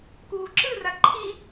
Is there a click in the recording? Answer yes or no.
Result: yes